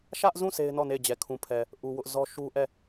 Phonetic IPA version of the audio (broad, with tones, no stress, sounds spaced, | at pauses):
ʃ ä˦ ʔ z ũ˦˨ s e˦ ɪ̯ n ɔ˦˨ n e˦˨ ɪ̯ d͡ʑ ɛ˨ kʰ ũ˨ pʰ ɛ˨ | ʔ u˨ w ʊ˦ ʔ z ɔ˦ ʃ u˦ ʔ ɛ˦˨